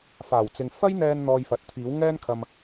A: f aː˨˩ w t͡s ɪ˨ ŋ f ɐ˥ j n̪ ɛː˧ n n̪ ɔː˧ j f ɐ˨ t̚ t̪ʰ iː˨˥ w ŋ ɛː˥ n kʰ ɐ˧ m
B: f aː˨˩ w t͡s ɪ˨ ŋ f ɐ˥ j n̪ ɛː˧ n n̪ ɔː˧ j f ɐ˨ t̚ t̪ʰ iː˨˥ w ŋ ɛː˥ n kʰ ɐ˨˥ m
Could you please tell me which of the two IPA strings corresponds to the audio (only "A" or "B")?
A